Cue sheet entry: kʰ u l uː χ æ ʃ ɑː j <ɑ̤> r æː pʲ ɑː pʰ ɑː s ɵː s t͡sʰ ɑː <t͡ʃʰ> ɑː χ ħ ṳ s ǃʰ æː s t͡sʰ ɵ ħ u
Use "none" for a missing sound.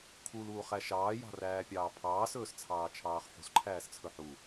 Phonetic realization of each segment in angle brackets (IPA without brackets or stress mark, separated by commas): ɑ̤, t͡ʃʰ